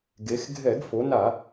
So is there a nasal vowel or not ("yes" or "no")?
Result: no